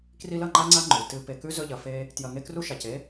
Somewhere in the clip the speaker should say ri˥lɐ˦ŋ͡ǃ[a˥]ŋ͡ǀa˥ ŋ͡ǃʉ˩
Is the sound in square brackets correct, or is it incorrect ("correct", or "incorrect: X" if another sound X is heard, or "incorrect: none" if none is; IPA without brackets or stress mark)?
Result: correct